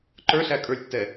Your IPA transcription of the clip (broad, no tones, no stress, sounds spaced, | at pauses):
ǃ ə˞ ɬ æ kʼ ə˞ lʲ tː ɛ